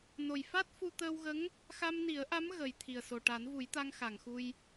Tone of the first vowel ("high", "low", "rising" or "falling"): low